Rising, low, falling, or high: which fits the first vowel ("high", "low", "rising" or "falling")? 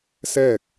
falling